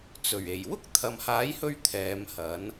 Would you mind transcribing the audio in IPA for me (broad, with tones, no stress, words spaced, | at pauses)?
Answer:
t͡sɵ˨˩ɥe˨˩j wʊ˥k̚t̪ʰɐ˨mhaː˨˥jhɵ˧ɥ t̪ʰɛː˨˧mhɐ˨˥n